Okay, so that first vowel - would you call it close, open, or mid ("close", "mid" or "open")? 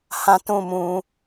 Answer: open